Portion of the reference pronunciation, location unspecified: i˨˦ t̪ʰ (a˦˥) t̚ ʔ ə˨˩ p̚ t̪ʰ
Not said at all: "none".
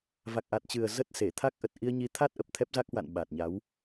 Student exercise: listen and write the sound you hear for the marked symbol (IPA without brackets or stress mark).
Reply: a˦˥